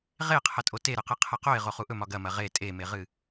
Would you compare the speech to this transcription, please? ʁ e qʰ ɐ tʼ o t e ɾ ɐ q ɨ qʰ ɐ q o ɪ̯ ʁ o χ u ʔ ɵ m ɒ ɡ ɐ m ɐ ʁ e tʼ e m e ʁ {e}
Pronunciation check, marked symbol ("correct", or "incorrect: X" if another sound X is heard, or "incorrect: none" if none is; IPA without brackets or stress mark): incorrect: ɨ